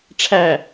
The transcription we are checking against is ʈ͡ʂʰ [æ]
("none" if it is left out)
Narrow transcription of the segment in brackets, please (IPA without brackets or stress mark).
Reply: æ